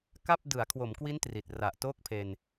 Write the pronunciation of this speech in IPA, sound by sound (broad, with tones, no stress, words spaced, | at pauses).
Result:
ka˥˩p̚ dɯ˩˦a̯kʰwo˩˦mkwi˦˥n tri˨˩t̚ ra˨˩ʔ toː˥˩k̚pʰe˧n